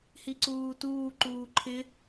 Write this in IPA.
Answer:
h i ǀ uː t uː ǃ uː ǃʰ ɪ

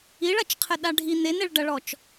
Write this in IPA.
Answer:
i ɭ ɐ t͡ʃ qʰ ɘ ɗ a ɖʱ i n̪ e n e ɭ ɖ ɐ ɭ ɔ t͡ʃ

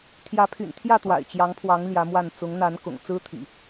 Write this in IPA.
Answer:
t̪ʰ j ä˨˦ pʰ y̰˨˩ n t̪ʰ j ä˥˨ t̪ w a̰˨˩ ɪ̯ t͡ɕ j ɑ˨˦ ŋ pʰ w ɑ˨˦ ŋ l j ä˨˦ m w a˥˨ n t͡s ʊ˨˦ ŋ n̪ a˨˦ n k ʊ̰˨˩ ŋ t͡s ɹ̩˦ t̪ʰ ḭ˨˩

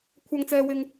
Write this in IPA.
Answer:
kʷʰ ɐ˨ ŋ t͡s ɛː˨ w ɪ˨ ŋ

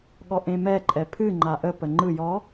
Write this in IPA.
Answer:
ɠ ɔ ʔ ẽ m ɛ ǃʼ ɛ pʰ ɨ ŋ͡ǃ a ʔ ə p ə ŋ͡ǃ ɯ j ɔ

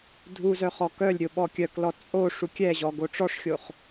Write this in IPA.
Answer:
dʱ u z œ χ ɔ k œ lʲ ɾʲ o ɓ ɔ kʲ œ k l ɔ t͡sʼ o ʂ u kʲ ɛ ʑ ɔ ɡ o ʈ͡ʂ ɔ ʂ xʲ o χ

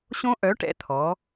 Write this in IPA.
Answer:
ɕ õ˦˥ ʔ œ˨˥ ʈ ɛ̰˨˥ t̪ʰ ɔ˩˧

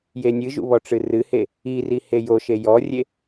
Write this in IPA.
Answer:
j e nʲ ɨ ʒ ṵ β ɔ ʈ͡ʂ ɨ r ɨ h e | i r i h e j o ʃ e j ɔ rʲ e

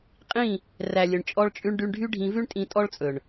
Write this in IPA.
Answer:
qʼ ĩ˦˨ | r æ˨ lʲ ɵ˨ ɳ t͡ʃʼ ɔ˧ ɭ t͡ʃʼ ʉ˧ ɳ ɖ y˧ ɳ ɖʱ y˦ ɖʱ ĩ˧ v ʉ˦ ɳ tʼ ĩ˧ tʼ ɔ˦ ɭ t͡sʼ ɵ˨ ɳ

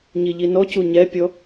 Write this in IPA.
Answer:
ɲ i ʎ i n ɔ c u ɲ ɛ pʲ ɔ

